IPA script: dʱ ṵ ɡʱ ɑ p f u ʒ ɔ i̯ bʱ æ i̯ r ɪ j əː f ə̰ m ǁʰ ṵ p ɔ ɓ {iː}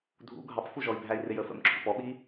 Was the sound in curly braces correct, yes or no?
yes